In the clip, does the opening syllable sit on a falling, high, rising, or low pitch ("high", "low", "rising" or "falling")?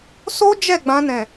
high